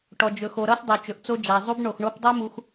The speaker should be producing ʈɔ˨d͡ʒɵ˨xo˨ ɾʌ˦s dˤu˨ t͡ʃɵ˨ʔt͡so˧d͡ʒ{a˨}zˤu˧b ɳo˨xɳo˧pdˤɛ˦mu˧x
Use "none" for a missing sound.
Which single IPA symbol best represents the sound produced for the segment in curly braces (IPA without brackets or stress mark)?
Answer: a˨